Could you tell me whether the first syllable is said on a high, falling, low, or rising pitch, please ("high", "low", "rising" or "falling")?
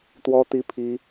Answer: high